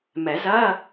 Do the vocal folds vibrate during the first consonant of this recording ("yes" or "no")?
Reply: yes